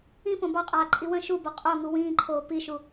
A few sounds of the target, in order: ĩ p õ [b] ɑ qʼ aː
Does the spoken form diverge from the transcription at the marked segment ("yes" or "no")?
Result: no